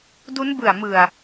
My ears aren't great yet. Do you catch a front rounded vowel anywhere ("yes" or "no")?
no